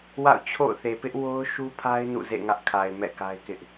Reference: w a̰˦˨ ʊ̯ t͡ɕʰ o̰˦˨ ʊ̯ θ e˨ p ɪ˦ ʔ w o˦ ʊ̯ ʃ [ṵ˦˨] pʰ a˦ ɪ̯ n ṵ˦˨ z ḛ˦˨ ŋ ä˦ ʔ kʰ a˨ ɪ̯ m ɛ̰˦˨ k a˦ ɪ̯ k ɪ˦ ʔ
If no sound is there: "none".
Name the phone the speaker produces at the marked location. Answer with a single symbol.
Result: u˦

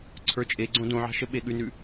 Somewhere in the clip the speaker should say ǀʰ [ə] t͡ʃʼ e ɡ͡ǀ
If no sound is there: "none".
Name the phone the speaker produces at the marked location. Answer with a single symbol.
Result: ə˞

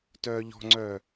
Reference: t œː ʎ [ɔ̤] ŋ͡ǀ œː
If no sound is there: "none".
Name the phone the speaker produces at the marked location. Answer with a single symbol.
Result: ɔ̤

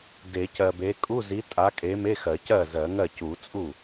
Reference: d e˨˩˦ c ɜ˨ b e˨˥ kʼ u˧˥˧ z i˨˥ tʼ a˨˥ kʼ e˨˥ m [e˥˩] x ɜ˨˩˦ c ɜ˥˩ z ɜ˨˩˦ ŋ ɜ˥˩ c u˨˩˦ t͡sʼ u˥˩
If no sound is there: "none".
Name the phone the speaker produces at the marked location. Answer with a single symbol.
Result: e˧˥˧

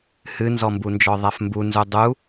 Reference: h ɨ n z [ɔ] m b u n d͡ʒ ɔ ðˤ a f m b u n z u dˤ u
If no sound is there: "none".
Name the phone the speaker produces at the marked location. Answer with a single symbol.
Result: ɔ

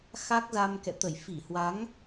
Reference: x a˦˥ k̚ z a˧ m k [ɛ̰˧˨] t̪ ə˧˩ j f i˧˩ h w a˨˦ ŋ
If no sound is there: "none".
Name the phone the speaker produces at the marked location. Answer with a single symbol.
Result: ɛ̰˧˨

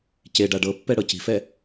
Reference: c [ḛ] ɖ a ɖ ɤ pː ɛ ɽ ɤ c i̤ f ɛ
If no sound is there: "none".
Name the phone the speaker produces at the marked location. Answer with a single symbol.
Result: e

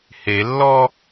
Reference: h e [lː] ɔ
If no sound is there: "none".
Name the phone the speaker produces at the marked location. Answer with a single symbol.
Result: lː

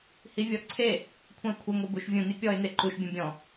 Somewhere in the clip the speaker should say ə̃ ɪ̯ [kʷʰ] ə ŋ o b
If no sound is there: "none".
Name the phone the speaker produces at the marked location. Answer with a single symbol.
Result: kʷʰ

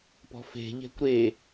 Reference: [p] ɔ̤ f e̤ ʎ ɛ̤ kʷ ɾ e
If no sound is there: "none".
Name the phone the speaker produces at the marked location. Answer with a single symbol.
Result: p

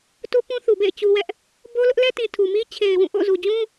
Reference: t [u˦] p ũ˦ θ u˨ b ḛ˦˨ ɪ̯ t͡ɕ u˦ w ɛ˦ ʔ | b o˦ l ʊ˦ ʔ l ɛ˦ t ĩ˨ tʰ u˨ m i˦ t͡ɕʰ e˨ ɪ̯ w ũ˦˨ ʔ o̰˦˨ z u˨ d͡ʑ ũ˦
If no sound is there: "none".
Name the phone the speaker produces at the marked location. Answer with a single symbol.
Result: u˦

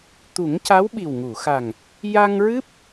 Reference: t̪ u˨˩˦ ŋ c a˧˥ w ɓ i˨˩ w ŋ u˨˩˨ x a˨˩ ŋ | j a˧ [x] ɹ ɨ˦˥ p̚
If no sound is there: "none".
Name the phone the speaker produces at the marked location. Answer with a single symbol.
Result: ŋ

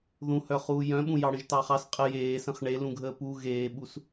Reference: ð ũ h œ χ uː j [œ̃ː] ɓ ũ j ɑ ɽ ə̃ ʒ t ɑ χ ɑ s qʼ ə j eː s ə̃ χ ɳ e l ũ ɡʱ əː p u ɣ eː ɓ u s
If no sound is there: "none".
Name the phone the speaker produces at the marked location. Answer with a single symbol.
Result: œ̃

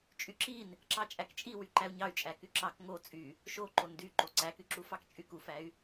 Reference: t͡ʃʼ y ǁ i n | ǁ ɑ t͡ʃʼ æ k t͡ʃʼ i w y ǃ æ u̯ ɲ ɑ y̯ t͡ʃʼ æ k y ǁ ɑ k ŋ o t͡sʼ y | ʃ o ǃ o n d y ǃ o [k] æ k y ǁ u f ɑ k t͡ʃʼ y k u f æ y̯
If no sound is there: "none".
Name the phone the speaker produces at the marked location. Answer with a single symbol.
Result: ǀ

